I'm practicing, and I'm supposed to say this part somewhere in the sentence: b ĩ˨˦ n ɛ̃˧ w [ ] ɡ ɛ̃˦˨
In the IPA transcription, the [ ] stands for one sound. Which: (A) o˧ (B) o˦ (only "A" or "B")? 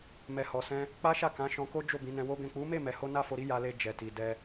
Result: B